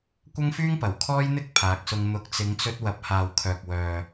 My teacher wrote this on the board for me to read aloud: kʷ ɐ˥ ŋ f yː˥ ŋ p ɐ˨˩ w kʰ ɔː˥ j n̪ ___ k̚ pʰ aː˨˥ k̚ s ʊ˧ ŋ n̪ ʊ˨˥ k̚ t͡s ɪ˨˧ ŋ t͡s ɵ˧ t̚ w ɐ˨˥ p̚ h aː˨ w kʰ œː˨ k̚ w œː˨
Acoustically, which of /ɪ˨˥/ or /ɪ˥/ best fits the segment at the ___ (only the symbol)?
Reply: ɪ˥